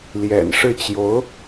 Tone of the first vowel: low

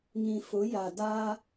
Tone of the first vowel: low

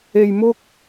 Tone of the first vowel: low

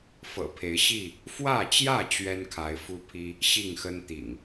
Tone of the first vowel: low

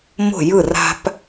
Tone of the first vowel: falling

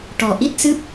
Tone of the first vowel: low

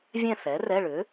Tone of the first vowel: falling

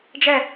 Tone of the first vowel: falling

